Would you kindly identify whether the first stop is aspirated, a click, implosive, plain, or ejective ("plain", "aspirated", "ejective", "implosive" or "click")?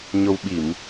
implosive